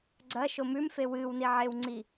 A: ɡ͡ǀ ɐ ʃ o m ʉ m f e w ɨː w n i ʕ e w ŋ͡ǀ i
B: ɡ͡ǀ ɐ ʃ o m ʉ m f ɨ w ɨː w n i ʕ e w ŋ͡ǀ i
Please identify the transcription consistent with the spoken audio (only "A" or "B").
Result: A